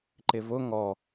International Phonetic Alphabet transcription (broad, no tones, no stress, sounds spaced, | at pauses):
ǃ ɪ v ʊ ŋ ɔ